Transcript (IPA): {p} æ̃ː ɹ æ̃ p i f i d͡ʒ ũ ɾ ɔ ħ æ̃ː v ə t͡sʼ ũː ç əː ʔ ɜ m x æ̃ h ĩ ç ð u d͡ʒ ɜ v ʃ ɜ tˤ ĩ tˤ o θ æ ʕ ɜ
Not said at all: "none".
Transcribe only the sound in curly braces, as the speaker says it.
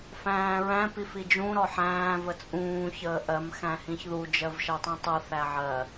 f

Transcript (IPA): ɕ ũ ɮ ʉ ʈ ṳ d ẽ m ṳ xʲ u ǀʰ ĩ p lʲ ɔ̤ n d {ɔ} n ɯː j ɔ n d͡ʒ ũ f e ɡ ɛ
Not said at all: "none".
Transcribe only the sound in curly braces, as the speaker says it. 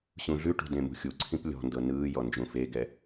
ɤ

